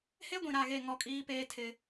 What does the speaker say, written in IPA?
h e˦ ɡʷ ĩ˨ ɾ a˦˨ ɣ e˦˨ ŋ ɔ˦˨ kʼ iː˦ p eː˦ tʰ ɪ˦

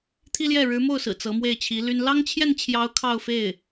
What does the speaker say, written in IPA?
t̪ʰ i˥ l j ɛ˥˩ ɻ ɻ̩˧˥ m o˥˩ ʊ̯ s ɹ̩˨˩ t͡s ɤ˧˥ m w e˥˩ ɪ̯ t͡ɕʰ i˧˥ l y˥ n l ɑ˥ ŋ t͡ɕʰ j ɛ˥˩ n t͡ɕʰ j ɑ˧˥ ʊ̯ kʰ ɑ˥˧ ʊ̯ f e˥˩ ɪ̯

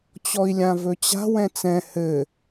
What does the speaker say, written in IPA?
t͡ɕ ɔ i̯ lʲ ã v ɵ t͡ɕ a̤ w ɛ̃ t͡s ɛ̃ h ɘ

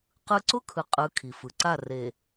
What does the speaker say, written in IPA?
q ɯ˦ ǀ ʊ˦ kʰ ɯ˨ qʼ ɯ˨˦ kʰ i˨ f ɯ˨ ǀ a˦˨ r e˨

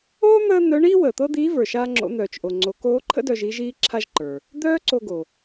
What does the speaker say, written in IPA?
oː˥ n̪ əː˥ n̪ œ˧˥ ɳ iː˥ w əː˩ t̪ ɤ˥ d̪ iː˧˥ v ə˞˩ ʃ aː˥ ŋ͡ǁ o̰˧˥ n̪ œː˩ t͡ʃ ʔ o˩ ŋ͡ǀ o˩˧ k oː˧˥ ǃʰ ə̰˥ d œ˧ ʒ i˧˥ ʒ iː˥ ǁʰ a˥ ʒ ǃ ə˞˩ | d̪ œː˥ ǀ o˧ ɡ o˩

